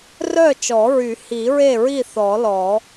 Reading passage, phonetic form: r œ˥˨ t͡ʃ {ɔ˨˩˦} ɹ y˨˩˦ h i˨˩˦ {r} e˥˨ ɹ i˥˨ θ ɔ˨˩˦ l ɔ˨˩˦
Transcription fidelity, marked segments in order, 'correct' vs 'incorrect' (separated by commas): correct, incorrect